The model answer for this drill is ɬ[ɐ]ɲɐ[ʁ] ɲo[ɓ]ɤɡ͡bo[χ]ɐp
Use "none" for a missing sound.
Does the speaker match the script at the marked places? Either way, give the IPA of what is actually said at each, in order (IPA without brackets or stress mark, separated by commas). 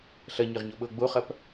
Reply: ɐ, ʁ, ɓ, χ